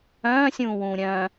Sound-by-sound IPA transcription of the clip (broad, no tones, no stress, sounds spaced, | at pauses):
œ̃ː sʲ ũː w ũː ɾʲ œ̃ː